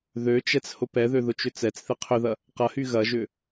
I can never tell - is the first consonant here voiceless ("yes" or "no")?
no